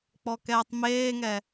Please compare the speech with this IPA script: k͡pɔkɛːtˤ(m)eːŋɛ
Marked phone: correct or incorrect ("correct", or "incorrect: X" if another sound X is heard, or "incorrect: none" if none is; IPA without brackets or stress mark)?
correct